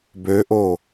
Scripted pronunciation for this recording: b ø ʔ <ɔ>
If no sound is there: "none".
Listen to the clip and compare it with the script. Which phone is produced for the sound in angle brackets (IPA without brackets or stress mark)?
o